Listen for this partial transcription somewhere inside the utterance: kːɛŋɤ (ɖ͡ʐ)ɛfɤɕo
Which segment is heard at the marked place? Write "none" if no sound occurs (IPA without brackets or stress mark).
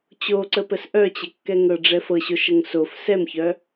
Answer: ɖ͡ʐ